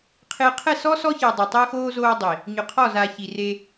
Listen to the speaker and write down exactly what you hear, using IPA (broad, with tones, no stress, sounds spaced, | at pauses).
qʰ ɪː˨ qʰ ɛ˦˨ s ɔ˦ s ɔ˦ ç ɪː˨ dˤ e˨ tˤ ɪː˦ x oː˦ z oː˦ dˤ i˨ | ɲ ʊ˨ qʰ ɔ˦˨ z a˨ ç i˨ r e˦